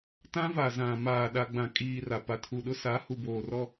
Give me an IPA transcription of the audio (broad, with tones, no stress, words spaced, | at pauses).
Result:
tã˦va˨zã˨ maː˨ ɗa˨ɡ͡bã˨kʼiː˨ ra˨ pa˨tʰu˨ɗʊ˦ sa˨˦hu˨boː˨ rɔ˦